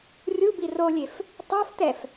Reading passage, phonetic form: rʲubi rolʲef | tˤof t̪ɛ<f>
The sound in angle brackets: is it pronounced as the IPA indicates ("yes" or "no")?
yes